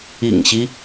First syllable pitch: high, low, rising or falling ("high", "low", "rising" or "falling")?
low